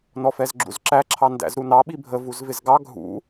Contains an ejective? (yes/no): no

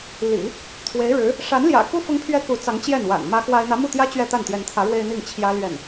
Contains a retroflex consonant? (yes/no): yes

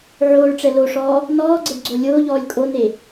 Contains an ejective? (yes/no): yes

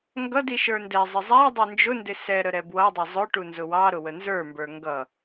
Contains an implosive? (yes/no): no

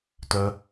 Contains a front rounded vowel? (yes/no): yes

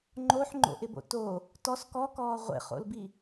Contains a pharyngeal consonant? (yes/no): yes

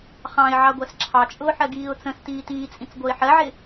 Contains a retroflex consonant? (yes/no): no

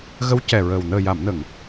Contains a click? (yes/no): no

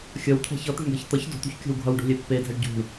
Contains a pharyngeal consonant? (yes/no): no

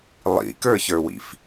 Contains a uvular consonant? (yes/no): no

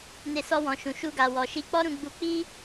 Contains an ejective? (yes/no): no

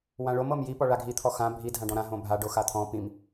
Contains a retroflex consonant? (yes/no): yes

